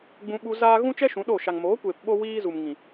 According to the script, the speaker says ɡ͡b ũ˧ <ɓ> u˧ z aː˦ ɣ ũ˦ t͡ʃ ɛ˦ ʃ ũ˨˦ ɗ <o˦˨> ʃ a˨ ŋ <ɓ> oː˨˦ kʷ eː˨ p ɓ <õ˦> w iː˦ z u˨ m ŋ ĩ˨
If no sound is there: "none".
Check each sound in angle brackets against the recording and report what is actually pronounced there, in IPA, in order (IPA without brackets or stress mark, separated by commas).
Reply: ɓ, o˦˨, m, o˦